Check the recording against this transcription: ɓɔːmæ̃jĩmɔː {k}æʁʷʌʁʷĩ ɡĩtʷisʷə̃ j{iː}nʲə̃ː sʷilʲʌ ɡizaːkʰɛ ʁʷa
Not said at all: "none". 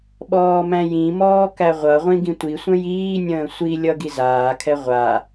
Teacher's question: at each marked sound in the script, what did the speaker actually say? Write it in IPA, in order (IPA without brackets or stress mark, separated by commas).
k, iː